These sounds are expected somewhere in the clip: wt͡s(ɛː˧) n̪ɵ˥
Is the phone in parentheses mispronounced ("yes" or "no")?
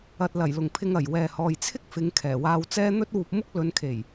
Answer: yes